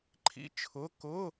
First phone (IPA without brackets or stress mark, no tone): ǃʰ